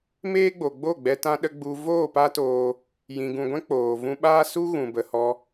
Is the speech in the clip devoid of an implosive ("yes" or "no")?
no